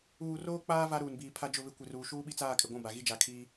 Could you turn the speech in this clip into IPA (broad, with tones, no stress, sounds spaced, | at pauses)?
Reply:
uː˨ r oː˦ k͡p aː˦ v a˦ ɾ uː˨ n b iː˨ pʰ a˦ d͡ʒ ʊ˦˨ β ɪ˦ kʷ ɪ˨ r uː˨ ʃ uː˦ ɓ i˦ t͡s aː˦˨ kʼ ɪ˨ ɡʷ ũ˦˨ b a˨ ɣ i˦ d͡ʒ a˨ kʰ iː˦